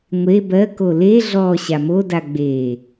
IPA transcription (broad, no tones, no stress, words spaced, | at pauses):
ŋʷe bɜko le ɮɔ ɕamoda ɡ͡beː